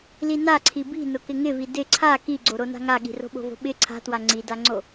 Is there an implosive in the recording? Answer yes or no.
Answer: yes